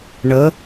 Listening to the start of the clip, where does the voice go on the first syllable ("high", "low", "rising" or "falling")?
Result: rising